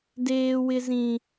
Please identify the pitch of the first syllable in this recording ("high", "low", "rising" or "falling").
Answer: high